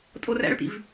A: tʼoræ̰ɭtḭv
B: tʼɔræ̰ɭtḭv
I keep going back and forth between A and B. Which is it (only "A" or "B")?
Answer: A